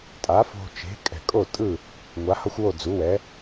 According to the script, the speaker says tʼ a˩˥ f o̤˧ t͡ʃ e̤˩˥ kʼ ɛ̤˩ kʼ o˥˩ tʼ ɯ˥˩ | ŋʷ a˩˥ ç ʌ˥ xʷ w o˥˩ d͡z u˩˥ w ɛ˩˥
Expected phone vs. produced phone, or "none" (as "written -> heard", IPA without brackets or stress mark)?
ç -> h